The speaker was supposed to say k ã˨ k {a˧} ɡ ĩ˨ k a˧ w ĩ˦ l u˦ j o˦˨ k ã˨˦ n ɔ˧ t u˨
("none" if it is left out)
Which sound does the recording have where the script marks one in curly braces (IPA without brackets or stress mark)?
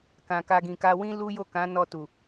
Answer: a˧